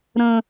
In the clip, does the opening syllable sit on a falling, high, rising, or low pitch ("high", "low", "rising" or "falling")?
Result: high